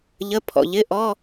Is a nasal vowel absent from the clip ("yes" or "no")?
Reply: yes